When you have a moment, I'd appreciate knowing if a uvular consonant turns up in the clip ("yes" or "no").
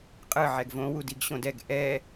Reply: yes